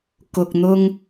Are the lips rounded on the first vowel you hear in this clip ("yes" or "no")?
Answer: yes